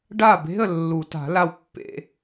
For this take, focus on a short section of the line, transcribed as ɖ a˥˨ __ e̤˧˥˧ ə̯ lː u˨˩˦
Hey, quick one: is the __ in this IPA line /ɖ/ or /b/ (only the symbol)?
b